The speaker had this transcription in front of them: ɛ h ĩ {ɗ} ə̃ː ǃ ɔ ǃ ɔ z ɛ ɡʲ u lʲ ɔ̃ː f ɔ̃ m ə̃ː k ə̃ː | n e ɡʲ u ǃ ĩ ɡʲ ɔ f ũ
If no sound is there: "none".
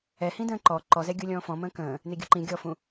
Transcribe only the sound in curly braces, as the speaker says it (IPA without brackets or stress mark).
d